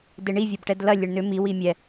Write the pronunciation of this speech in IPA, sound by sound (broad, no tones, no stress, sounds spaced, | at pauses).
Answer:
d e ɳ i vʲ ɐ b ʈ ɛ d l ɐ lʲ e ɳ n ʏ m i w i mʲ ɛ